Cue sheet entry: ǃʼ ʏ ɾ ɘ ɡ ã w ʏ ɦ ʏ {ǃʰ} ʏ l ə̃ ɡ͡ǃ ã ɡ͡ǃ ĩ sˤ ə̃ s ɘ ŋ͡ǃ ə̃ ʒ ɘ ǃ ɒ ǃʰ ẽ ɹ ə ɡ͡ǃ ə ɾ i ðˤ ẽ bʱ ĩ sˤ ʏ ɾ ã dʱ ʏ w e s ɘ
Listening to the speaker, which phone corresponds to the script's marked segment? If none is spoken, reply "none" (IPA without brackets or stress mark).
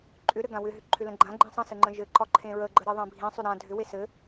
ǃʰ